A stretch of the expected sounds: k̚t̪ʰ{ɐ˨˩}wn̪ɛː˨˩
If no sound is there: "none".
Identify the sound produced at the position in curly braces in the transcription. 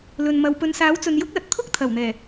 ɐ˨˩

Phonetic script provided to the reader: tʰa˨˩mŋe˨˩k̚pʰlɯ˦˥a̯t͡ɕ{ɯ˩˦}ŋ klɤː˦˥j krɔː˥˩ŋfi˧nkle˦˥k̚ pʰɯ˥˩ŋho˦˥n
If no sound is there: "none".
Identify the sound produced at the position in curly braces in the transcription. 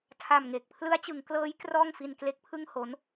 ɯ˩˦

